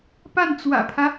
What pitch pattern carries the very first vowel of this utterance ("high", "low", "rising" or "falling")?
falling